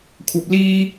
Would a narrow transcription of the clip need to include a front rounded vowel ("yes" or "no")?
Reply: no